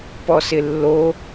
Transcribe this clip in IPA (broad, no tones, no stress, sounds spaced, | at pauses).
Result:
p ɔ s ɪ lː o